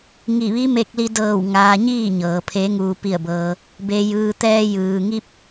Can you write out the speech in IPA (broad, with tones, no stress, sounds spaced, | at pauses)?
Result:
ŋ i˧˩ ʋ i˧˥ m e˧ k̚ l i˧ d ɤː˧˩ w ŋ aː˩ ɲ iː˥˨ ɲ ɤː˩ pʰ e˩˧ ŋ uː˩ p i˧˩ ə̯ b ɤː˩ | b e˩ j ɯː˩ t̪ ɛː˧ j ɯː˩ ŋ i˧ p̚